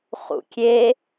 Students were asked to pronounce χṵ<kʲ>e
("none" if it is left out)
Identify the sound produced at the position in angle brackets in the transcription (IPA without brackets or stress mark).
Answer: kʲ